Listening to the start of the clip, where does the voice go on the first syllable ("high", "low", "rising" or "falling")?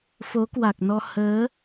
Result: rising